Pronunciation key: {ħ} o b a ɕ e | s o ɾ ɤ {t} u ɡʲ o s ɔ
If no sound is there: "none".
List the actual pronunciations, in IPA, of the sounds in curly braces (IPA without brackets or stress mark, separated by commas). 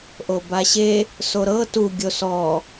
ʔ, t